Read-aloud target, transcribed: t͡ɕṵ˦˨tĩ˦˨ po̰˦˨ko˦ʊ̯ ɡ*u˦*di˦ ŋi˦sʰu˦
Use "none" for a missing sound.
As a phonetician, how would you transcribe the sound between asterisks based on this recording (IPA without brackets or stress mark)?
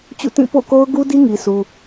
u˦